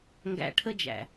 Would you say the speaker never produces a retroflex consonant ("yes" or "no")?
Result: no